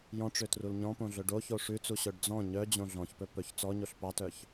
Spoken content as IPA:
j ɔ̃ ʈ͡ʂ ø t r u l ɲ ɔ̃ p õ ɮ ɵ ɖ o ç o ʂ ʉ t͡s u ɕ œ ɖ d͡z ɔ̃ ɲ œ d͡ʑ õ ɮ ɔ̃ ç p ɵ p ɵ ç t͡s ɔ ɲ o ɬ p ɑ t œ ç

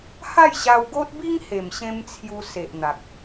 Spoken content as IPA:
h a˥˧ j ɕ a˧ w ɡ o˦ t̚ b i˦ ŋ h e˨˩ m ɕ ẽ˧ m t͡sʰ j u˧ s e˨ ʔ n̪ a˨ k̚

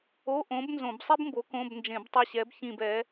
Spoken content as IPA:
o˧˥˧ ʔ õ˨˥ b n z õ˧˩˧ b sˤ i˥ b m b o˨˥ k õ˧˥˧ b n d͡ʒ ẽ˧˩˧ b tˤ ʌ˦˨ ɕ ɛ˨˥ b ç ĩ˦˨ b ɛ˨˥

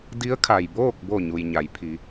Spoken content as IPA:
d i˧˥ ə̯ kʰ a˩ j b oː˥˨ k̚ b o˧˩ ɲ u˩ j ɲ a˩˧ j pʰ i˩˧

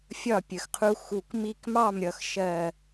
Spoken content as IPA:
fʲ ɒ˦˨ pʲ ə˨ x qʰ u˧ x u˨ k m i˧ k m ɑ˦˨ m ɾʲ ʌ˧ x ʃ ɜ˦˨

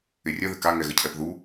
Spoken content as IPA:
ɪ rʲ ə ð ɪ k a ŋ ɛ ɣ ə cʰ ɛ p ð u

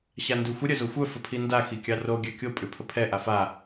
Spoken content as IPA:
ɕ a n d ʉ xʷ ə ɾʲ œ z o xʷ œ f ə pʰ i n d a x i kʲ ɑ r o ɡʲ a kʲ o pʼ ʉ pʰ ə pʰ ɛ ʔ a f a

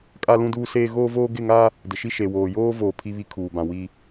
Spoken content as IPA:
kʼ a˦ l ũ˦ d uː˦ s eː˦ ɣ oː˦ v oː˦ ɡ ɪ˦˨ ŋ a˦ | d ɪ˨ ʃ i˦ ʃ e˨ w oː˨ j oː˦ v oː˦ pʰ i˦ β i˦ kʰ uː˨ b ã˨ w i˨

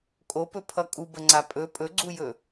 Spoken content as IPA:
kʼ o p ɵ pʰ ʌ kʼ u b ə ŋ͡ǀ a pʼ ɵ pʼ ɵ ɡ͡ǀ u j ɵ

